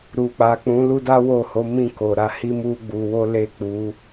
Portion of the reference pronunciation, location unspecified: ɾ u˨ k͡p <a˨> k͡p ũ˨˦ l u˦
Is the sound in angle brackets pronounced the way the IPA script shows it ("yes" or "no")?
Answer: yes